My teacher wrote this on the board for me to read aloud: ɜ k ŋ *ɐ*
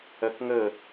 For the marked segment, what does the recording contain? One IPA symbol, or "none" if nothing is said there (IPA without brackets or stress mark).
ə